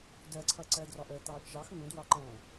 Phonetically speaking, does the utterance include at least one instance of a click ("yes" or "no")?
yes